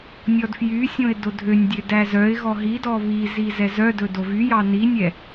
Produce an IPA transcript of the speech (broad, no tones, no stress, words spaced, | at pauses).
nʲɔdfjysʲõɪ̯ dodʱønʲdʲø dæzœɪ̯ɣɔ ɦidɔ βizi zɛzœdɵ dovyjɑ ninʲɛ